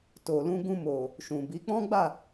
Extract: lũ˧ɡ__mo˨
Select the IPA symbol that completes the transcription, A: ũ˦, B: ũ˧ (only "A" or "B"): B